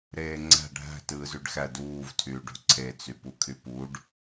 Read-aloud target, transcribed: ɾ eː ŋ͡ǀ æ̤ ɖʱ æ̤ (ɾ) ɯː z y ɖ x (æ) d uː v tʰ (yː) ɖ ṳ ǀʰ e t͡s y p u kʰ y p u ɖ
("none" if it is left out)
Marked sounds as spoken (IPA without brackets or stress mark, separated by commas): t, æ, yː